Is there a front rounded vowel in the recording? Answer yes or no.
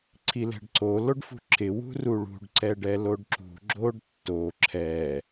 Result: no